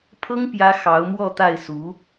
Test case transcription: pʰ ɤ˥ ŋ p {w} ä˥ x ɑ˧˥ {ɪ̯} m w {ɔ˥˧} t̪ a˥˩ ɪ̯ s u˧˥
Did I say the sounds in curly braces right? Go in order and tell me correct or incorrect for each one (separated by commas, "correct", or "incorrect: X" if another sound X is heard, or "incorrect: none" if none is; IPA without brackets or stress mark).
incorrect: j, incorrect: ʊ̯, correct